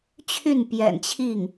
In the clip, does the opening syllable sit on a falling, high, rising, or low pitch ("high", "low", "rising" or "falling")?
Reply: falling